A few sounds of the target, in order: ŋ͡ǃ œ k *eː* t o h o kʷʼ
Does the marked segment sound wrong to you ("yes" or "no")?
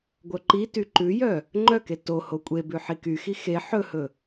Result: yes